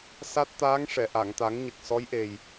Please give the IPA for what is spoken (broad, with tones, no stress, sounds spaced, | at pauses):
s a˦˥ t̚ t̪ aː˧˥ ŋ ʂ ɛ˨˩˨ ʔ a˨˩˨ ŋ t̪ a˨˩˦ ŋ ɲ ə˨˩ k̚ s ɔ˧˥ j ʔ e˨˩ j